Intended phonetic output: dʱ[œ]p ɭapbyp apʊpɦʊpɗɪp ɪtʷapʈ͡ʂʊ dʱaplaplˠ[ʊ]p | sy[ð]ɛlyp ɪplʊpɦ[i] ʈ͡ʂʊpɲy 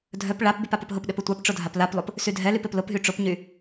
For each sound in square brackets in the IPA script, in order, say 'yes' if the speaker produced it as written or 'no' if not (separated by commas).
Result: yes, yes, no, no